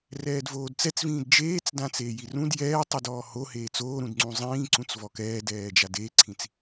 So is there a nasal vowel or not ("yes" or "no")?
yes